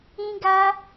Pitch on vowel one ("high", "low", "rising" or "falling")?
high